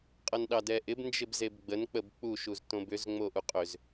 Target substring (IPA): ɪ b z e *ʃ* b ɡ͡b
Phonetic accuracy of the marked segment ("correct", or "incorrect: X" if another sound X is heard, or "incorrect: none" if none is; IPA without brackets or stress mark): incorrect: none